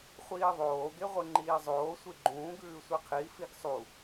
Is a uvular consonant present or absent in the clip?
present